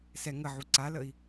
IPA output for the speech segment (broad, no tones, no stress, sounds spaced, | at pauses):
s ɛ ŋ ə ʕ u ǀ a l ə i̯